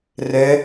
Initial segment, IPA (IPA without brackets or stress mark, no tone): r